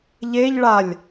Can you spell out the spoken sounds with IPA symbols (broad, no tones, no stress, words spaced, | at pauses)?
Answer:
ʎeʎ ɭalʲ